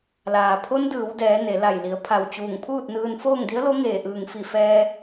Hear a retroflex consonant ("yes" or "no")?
no